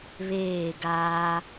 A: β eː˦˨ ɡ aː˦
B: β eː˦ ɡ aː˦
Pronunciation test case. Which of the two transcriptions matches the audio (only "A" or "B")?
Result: A